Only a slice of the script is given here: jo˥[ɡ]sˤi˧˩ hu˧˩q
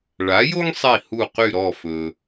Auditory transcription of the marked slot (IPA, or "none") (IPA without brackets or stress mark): ŋ